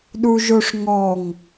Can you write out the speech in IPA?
ɗ u ʒ o ʂ ŋ ɔ ŋ

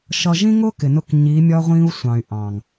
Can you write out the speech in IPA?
ʃ ʌ˨ ʒ ĩ˦ ŋ ʊ˦ k ɪ˨ n ʊ˦˨ k ɲ i˨˦ mʲ ɒ˦ ʁʷ ĩː˦ u̯ sʷ ɑ̃˨ y̯ ʔ ɑ̃˨ ŋ

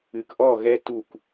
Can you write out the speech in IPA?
ɨ˨ k ʔ ɔ˦˨ ɣ ɛ˦ t u˦˨ k

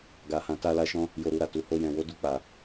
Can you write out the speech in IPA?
ɡ a˧ h ã˧ t a˧ l a˧ ʃ ɔ̃˧ | j o˧ ɾ u˧ ɾ a˨ t u˨˦ h o˧ j ɛ̃˨ w o˨˦ d u˧ k͡p a˨

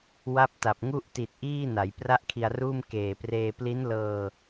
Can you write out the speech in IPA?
w a˦˥ p̚ t a˨˩ p̚ ŋ u˥˩ ʔ t i˨˩ t̚ ʔ iː˥˩ n a˩˦ j p r a˥˩ ʔ kʰ i˧ a̯ r uː˥˩ m k eː˨˩ p r eː˧ p l i˦˥ n l ɤː˧

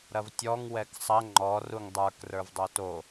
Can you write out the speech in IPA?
ɾ ɐ v tʲ ɔ ŋ w ɛ k sˤ ɐ ŋ͡ǃ ɔ r u ŋ dˤ ə˞ k r ə˞ v dˤ o t o

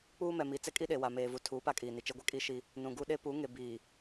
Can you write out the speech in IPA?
k͡p uː˦ m ɛ˨ m i˨ t͡s ɛ˦ kʼ i˦ ɗ e˨ w a˨ m eː˨ v u˨ tʰ uː˨˦ p a˦ kʼ iː˨ n i˨ t͡ʃ e˦ ɡʷ ɛ˦ kʼ i˦ ʃ i˦ | n ũ˨ ɡ u˦ ɗ e˦ p u˨˦ ŋ e˨ b iː˨

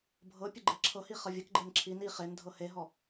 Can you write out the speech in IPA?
bʱ ɤ pʲ ə ɡ͡ǃ e ǁʰ ɤ h i χ ʌ vʲ ʌ k ɡ͡ǃ e n ǁʰ i n i χ e n dʱ ɤ h e ɦ ɔ

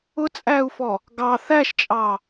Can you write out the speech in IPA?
ʊ t͡sʼ æ u̯ f ɔ | ɡ ɑ θ æ ʃ t͡ʃʼ ɑ

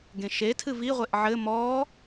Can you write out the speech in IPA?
ɡ ẽ ʃ e tʰ ɨ v i ʁʷ e ʔ ʕ ɘ m ɔ

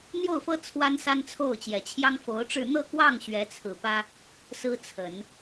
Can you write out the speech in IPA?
n̪ j o˥˩ ʊ̯ f ɤ˥ t͡sʰ w a˥ n s a˥ n t͡sʰ o˥˩ ʊ̯ t͡ɕ j ɛ˨˩ t͡ɕʰ j ɑ˥ ŋ f o˧˥ ʊ̯ ʈ͡ʂ ɻ̩˥˧ n̪ ɤ˥˧ k w ɑ˥˩ ŋ ɕ ɥ ɛ˧˥ t͡sʰ ɹ̩˨˩ p ä˥ | s ɹ̩˥ t͡sʰ ə˨˩˦ n

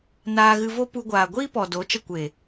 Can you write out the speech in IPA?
n aː˧ ɣ ɨ˧ v o˦ p u˧ ɡʷ aː˨ ɡʷ iː˦ p ɔ˨ d o˨˦ t͡ʃ ə˧ kʷ eː˨

